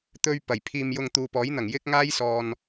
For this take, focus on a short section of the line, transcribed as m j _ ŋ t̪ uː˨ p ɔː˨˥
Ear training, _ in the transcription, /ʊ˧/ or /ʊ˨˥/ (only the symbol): ʊ˧